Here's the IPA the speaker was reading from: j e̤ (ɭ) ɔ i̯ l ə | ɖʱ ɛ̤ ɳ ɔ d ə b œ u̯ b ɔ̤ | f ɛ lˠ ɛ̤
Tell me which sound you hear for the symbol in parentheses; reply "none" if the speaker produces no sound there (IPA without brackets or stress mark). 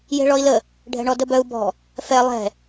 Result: ɭ